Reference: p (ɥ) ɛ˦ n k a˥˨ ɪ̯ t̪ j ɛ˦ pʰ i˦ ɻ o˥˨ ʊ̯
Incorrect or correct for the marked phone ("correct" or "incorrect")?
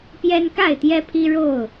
incorrect